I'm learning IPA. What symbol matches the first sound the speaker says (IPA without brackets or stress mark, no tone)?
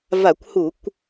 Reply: v